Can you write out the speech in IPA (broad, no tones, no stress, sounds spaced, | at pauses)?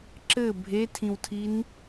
ǁ ɘ bʱ e tʰ ĩ w tʰ i n